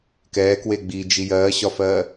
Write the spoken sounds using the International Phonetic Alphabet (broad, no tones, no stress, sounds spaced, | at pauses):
k ɛː k w e ɡ͡b i d͡ʒ i j ɜː ɕ ɒ f ɜ